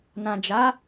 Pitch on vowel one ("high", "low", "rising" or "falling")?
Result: low